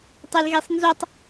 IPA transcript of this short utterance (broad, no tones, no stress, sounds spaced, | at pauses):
tˤ e l ɣ e sˤ n z o tˤ